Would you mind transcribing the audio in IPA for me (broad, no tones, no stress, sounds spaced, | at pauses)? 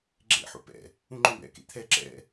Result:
ɡ͡ǁ ḛ ħ ṵ p ɛ̰ | ũ ŋ͡ǃ œ̃ b ɛ̰ k ḛ t̪ʰ ɛ ǁ ɛ̰